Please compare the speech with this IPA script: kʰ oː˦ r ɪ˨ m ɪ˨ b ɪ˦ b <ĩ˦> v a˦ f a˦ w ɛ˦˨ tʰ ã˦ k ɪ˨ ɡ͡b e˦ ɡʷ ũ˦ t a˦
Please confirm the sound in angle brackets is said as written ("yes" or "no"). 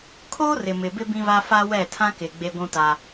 yes